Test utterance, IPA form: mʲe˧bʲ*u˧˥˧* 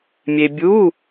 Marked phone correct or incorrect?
correct